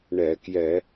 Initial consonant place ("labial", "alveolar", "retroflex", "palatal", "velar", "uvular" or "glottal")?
retroflex